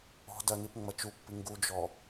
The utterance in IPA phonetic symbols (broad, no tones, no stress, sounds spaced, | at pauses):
ɔ̤ d ɐ n i p ŋ͡m ɐ t͡ʃ u pː i ŋ ɡ u d͡ʒ ɔ